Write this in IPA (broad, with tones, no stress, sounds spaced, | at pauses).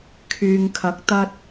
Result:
kʰ yː˨ ŋ kʰ ɐ˨˥ k̚ t̪ ɐ˧ t̚